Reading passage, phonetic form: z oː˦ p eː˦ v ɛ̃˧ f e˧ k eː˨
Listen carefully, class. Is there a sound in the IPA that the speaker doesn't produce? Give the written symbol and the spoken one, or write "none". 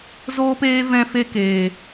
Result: none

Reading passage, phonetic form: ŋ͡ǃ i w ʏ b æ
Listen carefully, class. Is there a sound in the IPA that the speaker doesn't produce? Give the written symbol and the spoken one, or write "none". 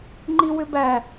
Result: none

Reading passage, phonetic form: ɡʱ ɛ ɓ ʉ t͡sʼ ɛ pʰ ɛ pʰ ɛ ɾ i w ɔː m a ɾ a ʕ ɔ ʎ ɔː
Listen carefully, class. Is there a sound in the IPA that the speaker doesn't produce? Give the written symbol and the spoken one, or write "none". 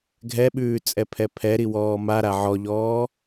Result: ʉ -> ʉː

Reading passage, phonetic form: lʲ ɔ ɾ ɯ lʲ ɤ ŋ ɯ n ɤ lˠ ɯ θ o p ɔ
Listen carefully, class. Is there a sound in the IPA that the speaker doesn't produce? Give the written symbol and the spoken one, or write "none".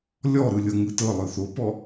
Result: n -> t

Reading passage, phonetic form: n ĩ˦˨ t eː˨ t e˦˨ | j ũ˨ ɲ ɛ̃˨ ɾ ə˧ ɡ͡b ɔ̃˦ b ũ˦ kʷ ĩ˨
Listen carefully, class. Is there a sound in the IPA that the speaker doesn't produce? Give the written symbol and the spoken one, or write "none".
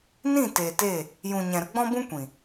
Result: none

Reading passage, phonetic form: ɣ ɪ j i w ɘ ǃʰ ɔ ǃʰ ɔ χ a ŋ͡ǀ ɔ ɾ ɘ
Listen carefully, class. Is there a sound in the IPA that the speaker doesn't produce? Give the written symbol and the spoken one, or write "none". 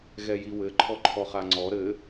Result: ɪ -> ɛ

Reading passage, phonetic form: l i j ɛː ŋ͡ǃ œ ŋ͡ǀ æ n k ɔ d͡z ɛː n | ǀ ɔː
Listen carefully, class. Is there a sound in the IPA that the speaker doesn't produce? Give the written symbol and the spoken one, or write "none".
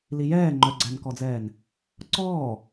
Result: ŋ͡ǀ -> ɡ͡ǀ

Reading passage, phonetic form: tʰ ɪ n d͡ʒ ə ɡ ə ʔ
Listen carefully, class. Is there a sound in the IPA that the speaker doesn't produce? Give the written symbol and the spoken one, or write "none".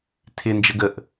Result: none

